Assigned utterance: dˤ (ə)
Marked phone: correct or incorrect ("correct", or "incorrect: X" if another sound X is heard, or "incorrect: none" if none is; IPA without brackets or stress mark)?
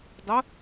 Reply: correct